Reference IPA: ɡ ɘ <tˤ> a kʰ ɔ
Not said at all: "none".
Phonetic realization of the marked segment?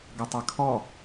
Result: tˤ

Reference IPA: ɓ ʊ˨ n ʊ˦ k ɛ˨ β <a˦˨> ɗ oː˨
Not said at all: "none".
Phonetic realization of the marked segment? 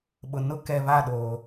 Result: a˦˨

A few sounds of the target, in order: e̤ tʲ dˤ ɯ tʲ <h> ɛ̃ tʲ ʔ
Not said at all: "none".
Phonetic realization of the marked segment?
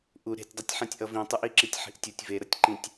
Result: ħ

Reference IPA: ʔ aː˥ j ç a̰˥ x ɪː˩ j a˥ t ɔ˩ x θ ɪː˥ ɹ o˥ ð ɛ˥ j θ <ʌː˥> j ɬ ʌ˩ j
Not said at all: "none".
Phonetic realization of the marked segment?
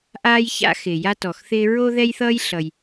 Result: ʌː˥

